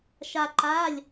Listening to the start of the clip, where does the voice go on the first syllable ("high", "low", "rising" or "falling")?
high